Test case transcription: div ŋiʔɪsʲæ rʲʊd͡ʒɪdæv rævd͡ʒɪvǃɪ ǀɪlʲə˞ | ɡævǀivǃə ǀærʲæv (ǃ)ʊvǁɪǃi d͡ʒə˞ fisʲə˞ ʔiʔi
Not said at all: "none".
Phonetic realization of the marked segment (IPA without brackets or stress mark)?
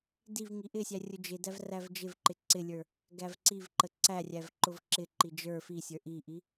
ǃ